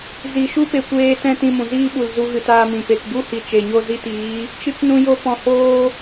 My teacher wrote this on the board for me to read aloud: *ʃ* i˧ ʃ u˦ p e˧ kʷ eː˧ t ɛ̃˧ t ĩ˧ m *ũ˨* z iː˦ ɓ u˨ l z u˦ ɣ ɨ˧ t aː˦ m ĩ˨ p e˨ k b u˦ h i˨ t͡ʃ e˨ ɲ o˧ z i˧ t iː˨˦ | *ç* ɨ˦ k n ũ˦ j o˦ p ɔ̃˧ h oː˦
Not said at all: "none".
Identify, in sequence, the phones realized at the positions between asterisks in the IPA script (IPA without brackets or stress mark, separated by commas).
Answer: z, ũ˨, t͡ʃ